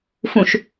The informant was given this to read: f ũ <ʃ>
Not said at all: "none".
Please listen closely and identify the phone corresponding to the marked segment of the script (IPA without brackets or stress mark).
ʃ